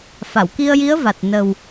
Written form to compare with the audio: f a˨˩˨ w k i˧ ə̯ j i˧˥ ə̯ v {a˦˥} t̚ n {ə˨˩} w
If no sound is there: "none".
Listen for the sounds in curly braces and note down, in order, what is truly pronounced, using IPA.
a˨˩, ə˨˩

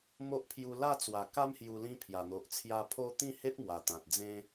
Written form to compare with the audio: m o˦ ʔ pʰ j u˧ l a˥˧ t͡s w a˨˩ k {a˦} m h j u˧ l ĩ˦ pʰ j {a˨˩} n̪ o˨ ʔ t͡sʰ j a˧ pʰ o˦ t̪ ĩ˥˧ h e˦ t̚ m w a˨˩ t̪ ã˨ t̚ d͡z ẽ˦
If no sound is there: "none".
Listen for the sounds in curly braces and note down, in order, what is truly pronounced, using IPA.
a˦, a˨˩

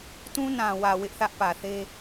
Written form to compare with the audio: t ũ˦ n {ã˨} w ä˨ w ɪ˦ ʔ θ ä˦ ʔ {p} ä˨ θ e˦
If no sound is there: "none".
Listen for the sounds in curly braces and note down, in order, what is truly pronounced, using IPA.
ã˨, p

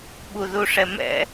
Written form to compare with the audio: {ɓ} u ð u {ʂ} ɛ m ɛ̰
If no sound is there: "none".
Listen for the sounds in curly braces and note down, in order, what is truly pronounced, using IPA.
ɓ, ʂ

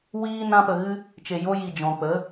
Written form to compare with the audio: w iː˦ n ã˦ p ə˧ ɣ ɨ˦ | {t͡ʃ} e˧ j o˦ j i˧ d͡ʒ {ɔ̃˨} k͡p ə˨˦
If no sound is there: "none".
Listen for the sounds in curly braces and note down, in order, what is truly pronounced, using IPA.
t͡ʃ, ɔ̃˨

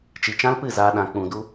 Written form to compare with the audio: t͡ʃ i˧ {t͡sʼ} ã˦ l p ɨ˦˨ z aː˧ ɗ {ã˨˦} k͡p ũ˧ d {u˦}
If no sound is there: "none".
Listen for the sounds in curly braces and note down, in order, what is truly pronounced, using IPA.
t͡ʃ, ã˨˦, u˦

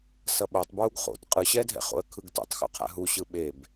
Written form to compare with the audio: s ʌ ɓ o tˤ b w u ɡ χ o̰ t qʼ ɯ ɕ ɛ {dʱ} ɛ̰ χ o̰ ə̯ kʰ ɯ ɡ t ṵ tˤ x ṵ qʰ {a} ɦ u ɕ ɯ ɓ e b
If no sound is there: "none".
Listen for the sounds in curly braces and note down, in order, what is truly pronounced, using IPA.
dʱ, a̰

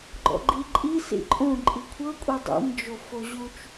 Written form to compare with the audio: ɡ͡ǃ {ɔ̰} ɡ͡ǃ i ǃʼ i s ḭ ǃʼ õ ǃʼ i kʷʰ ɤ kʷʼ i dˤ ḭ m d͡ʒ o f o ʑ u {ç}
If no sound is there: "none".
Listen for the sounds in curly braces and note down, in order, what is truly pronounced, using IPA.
ɔ̰, t͡ʃ

